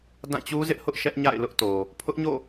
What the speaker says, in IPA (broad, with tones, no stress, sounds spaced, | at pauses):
d ã˦˨ t͡ɕ u˦ z ɪ˦ ʔ h ʊ˦ ʔ ʃ ɛ˦ ʔ ɲ a̰˦˨ ɪ̯ l ʊ˦ ʔ t o˨ | pʰ ʊ˦ ʔ ɲ o̰˦˨